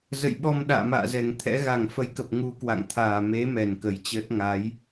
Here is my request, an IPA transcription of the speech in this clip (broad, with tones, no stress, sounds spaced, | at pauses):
z ə̰˧˨ j ɓ ɔ˧ m ɗ a̰ː˧˨ m a̰ː˧˨ z ɛ˨˩ ŋ t̪ʰ ɛ̰˧˥ ɣ a˨˩ ŋ f ə˨˦ j k ə˨˩ p̚ ŋ u˧ k w a̰˧˨ ŋ t̪ʰ aː˨˩ m e˨˦ m ɛ˨˩ n k ə˨˩ j t͡ɕ əː˦˥ t̚ ŋ a˨˦ j